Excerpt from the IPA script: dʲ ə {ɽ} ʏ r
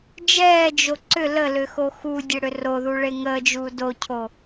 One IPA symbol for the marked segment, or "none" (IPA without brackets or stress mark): ɽ